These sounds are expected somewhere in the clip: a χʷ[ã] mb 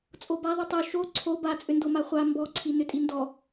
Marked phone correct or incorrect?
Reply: incorrect